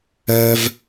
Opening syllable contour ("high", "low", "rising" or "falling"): high